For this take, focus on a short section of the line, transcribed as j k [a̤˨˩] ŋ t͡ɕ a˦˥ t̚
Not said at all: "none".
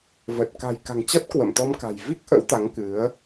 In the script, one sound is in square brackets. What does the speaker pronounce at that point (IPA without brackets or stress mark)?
a̤˨˩